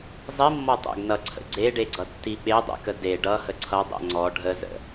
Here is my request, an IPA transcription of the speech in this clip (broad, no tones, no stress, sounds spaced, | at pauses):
zˤ i mː ɔ tˤ ɛ̰ ɡ n ʌ ǀʰ ə̰ ɡ͡ǀ e ɖ e ɡ͡ǀ ʌ tː i ɓ e dˤ ɛ̰ k ə d e ɖ ʌ h ə ǀʰ ʌ dˤ ɛ̰ ŋ͡ǀ ɔ ɖʱ ə z ə̰